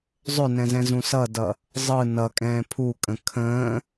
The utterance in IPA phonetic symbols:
zˤʏnɛ̃zɛ̃zũ sʌdʌ | zˤɯ nʌkʼɛ̃ː pʰukʼə̃ kʰə̃ː

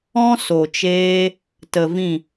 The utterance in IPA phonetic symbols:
ɔ̃˦ so˨t͡ʃeː˧ | tə˨ vĩ˦˨

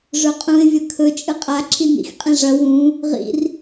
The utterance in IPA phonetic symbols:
ʐɵqʼũɪ̯ vʲɐkʰɵ t͡ʃʼɨqʼa ǁʰinḭx qʼĩʐɐ wũ | ʁḭr

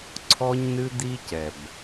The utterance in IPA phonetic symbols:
ǀʰɔ˦ɲnɨ˦d̪i˦cɛ˨b

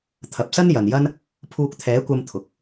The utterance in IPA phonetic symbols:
t̪ʰɐ˨p̚sɐ˥njɐ˨njɐ˥n | pʰuː˧k̚t̪ʰɛː˨˥kʷɐ˧m t̪ʰʊ˨k̚

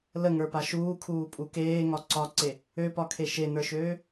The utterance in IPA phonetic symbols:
ləŋə˞pa ʃuːkʰuːpʼu keːŋɒ ǀɒǀe | øpɒkʰe ʃenə˞ʃøː

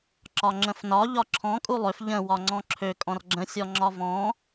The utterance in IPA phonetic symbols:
ǁɒŋ͡ǁə̃fnɒ ʎɒǁʰɔ̃ kʼulˠøf ʎə̃ wɒŋ͡ǀɔ̃ǁʰø kʼɔ̃rɡ͡ǁə̃ sʲɔŋ͡ǁɒvɔ̃

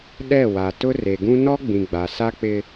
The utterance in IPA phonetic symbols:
ɗɛ˦˨ wa˨tʊ˦ re˨ɡũ˦ nɔ˦ɡ͡bĩ˨ ɡ͡ba˨ sa˦k͡pɪ˦

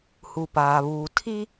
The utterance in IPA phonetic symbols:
hu˨paː˨βuː˨ tʰi˦

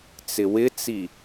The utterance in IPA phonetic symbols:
t͡sɪwɪt͡si

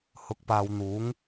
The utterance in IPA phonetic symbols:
hʊ˨k̚paː˨w n̪uː˨˥ŋ

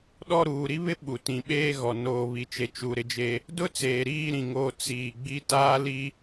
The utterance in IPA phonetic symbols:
ɗɔ˦˨ɾuː˨ɾi˦βɪ˦ ɓu˨tĩ˨ɓeː˦ɣɔ˨ noː˨βi˨t͡ʃe˨ t͡ʃu˨ ɾɪ˦d͡ʒe˦ | dʊ˦ t͡seː˨ɾiː˦˨ ɾĩ˨ŋo˦˨ t͡siː˨ ɡ͡bi˦taː˦li˦

